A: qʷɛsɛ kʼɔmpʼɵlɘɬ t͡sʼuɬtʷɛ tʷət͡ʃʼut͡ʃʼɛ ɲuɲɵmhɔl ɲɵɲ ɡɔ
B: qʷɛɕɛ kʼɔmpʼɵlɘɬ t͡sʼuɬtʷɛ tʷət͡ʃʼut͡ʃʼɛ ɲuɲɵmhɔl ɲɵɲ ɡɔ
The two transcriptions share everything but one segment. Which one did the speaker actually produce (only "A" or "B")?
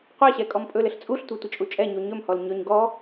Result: B